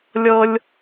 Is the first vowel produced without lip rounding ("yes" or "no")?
yes